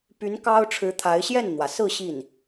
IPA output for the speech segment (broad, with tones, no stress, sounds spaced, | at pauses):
p y˧˥ n k ɑ˥ ʊ̯ ʈ͡ʂʰ ɻ̩˧˥ t̪ʰ a˧˥ ɪ̯ ɕ j ɛ˥˩ n n̪ w ä˩ s ɹ̩˥˧ ɕ i˥˩ n